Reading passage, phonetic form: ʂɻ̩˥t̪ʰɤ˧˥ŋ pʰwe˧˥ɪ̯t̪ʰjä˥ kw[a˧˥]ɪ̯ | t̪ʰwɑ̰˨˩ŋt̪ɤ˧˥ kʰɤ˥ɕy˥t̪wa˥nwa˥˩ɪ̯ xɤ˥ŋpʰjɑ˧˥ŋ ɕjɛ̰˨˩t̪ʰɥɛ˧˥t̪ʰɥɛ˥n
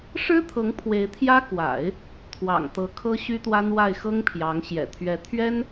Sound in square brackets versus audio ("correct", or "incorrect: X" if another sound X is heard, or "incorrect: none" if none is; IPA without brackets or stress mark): incorrect: a̰˨˩˦